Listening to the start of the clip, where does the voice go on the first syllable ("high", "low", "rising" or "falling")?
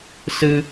high